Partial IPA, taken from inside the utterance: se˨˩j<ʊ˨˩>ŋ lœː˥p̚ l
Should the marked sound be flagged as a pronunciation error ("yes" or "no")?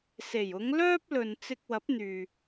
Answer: yes